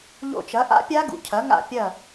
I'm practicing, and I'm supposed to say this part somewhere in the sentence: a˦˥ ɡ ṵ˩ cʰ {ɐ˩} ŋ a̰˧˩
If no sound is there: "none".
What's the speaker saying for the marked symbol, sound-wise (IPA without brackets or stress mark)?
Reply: ɐ˩˥